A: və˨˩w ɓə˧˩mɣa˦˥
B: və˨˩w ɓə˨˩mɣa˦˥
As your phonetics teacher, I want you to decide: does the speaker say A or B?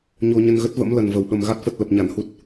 B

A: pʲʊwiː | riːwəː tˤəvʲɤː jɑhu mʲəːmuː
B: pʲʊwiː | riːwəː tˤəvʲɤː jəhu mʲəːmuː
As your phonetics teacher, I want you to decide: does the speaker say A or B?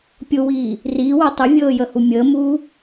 B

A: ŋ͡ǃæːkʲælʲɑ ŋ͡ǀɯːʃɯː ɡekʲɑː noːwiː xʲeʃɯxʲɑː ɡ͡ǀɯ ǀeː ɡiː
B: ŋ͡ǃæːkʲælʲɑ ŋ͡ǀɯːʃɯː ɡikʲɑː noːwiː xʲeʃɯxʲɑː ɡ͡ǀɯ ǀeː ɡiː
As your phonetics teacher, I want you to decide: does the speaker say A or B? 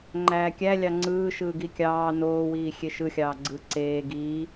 B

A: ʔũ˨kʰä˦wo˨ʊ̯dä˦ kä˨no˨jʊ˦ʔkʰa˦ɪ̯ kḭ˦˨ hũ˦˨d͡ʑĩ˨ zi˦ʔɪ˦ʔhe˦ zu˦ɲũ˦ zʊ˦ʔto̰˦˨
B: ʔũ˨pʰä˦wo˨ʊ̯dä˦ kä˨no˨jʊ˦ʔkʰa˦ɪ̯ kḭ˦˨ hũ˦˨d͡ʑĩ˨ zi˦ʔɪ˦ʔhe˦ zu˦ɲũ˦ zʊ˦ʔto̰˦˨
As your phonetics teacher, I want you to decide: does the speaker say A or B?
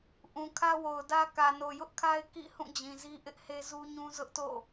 A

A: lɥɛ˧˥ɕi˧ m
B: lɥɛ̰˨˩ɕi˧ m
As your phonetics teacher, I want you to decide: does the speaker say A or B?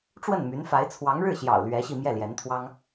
A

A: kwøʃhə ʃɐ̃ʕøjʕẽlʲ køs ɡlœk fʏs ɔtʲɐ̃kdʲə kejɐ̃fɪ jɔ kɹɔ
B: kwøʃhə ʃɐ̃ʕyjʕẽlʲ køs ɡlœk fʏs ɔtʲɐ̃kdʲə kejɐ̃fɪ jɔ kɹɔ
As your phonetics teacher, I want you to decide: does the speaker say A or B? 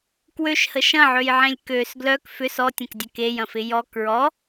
A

